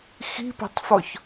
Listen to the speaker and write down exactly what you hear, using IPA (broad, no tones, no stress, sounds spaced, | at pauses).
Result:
x i̤ p a̤ tˤ f ɔ ç